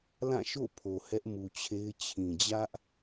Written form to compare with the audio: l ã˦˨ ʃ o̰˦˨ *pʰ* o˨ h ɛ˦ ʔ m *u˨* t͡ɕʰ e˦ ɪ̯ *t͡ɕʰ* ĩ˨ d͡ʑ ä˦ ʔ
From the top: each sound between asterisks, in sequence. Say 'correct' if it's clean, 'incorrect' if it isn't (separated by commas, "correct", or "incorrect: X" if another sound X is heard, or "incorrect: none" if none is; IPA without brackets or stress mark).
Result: correct, correct, correct